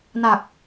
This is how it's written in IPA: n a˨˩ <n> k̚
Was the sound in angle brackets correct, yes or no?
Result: no